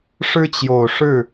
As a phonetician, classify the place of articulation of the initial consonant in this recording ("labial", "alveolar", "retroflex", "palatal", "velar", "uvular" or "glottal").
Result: retroflex